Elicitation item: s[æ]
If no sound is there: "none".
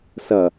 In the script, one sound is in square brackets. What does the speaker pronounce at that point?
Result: ɐ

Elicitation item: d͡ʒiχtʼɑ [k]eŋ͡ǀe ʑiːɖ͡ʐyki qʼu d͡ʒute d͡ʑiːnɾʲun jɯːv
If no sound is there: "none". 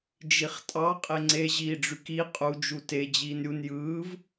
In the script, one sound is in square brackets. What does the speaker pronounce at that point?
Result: qʼ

